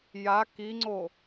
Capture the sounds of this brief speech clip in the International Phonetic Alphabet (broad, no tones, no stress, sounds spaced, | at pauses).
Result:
j a k i ŋ͡ǀ o